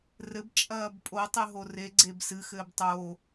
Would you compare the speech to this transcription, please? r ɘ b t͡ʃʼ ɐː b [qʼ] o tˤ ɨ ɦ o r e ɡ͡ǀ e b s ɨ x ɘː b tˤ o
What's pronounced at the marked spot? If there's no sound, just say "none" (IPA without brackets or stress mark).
pʼ